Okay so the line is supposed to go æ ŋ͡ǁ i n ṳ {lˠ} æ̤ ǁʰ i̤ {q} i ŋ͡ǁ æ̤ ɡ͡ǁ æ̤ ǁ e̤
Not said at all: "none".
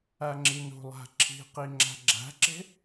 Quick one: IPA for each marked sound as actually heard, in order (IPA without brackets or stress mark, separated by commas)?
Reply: lˠ, q